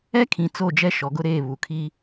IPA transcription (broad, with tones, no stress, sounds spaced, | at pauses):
ɛ˦ kʰ ĩ˨ t͡s o˦˨ d͡ʒ ɛ˦ ʃ ɔ˨ ɡ ʊ˦ ɾ eː˦˨ β u˨ kʰ i˦